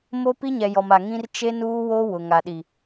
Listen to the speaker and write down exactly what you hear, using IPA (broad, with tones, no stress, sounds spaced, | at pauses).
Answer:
m o˦ p i˦ ɲ ɛ˨ j ɔ˨ m a˨ ŋ ĩ˦ r t͡ʃ e˦ n uː˦ w o˦ w ʊ˨ ŋ a˨ ɗ i˨